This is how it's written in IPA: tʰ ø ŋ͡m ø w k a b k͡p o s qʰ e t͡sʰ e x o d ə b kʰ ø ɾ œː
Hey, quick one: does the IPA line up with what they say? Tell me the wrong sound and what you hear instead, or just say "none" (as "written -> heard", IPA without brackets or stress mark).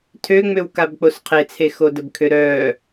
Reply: none